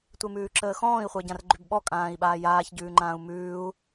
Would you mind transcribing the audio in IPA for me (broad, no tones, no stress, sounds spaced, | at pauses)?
tʷ e m ʉː ǁ əː x ɔ̃ː i̯ χʷ əː ɟ ã r ɡ͡ǃ ʉ b ɓ ɔ kʼ ãː i̯ ɓ aː j aː ç ɟ ʉː ŋ͡ǃ ãː u̯ m ʉː u̯